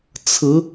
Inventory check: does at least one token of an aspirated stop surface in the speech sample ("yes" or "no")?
yes